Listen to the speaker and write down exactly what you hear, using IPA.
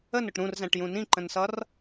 ə n ʊ ʈ ɾ ũ r z æ̃ ʈ j ũ n ĩ ǃ ə̃ n s ʌ r

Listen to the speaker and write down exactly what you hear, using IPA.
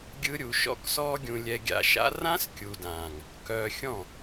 ɡʲ ɯ˦ ɾʲ u˧ ʃ ɔ̰˦ k s ɔː˦ ɡʲ ũ˧ lʲ ɛ˧ ɡʲ a̰˧ ʃ a̰˦ r ã˦ s kʲ u˨ d ãː˨ ŋ | k œː˧ xʲ ɔ̃˦˨

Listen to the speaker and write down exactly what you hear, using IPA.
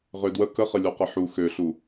ʁ ø d w ə k ə χ ə lʲ o q ə ħ u x ø ɬ u

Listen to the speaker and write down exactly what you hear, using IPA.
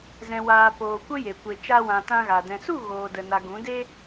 z ɛ̃˨ w aː˨ p oː˨ kʷ ə˦ j e˨ kʷ e˨ t͡ʃ a˧ w ã˨ t ã˧ ɣ a˨ d ɛ̃˨ s u˦˨ ɣ oː˨ d ə˨ n a˨ ɡ ũ˨˦ d e˦

